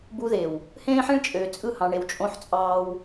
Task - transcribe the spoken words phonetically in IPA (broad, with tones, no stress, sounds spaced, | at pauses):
b u˦ ð e˨ w | h ẽː˦ ħ ĩ˦ ɭ t͡ʃʼ øː˨ t͡sʼ ɯ˦˨ h ɑ̃˨ ɳ e˨ w t͡ʃʼ õ˦ ħ t͡sʼ ɑː˦ w